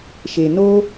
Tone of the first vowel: low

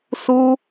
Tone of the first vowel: high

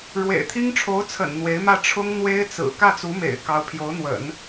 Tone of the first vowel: low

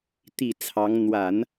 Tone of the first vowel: low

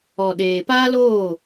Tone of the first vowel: low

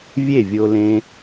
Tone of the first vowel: falling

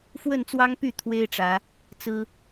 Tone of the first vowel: falling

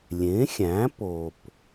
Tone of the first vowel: rising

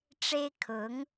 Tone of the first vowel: high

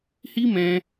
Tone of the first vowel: high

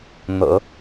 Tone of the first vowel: low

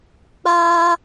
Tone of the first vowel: high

